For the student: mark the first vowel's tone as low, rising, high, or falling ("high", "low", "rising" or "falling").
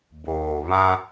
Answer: low